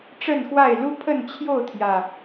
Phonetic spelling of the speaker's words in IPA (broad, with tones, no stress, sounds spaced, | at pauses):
ʈ͡ʂ ə˥˨ n x w a˥˨ ɪ̯ l u˦ pʰ ə˥˨ n t͡ɕʰ j o˥˨ ʊ̯ t̪ʰ j ä˨˩